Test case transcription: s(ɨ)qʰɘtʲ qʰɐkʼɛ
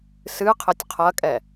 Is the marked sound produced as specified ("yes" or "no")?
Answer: yes